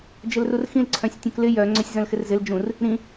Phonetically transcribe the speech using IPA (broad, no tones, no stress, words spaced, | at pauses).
d͡ʒɪlrurxĩl ǀʰœ̃sʲtʲũklɪ jœ ŋ͡ǀœsʲzœ̃lxɪrzɪl d͡ʒũr | ɾĩ